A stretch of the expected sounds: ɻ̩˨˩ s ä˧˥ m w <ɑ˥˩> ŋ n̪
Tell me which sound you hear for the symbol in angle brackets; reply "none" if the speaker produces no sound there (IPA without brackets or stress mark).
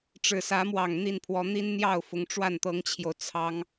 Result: ɑ˨˩